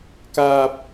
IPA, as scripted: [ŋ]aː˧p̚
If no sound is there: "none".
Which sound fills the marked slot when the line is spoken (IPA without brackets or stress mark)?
k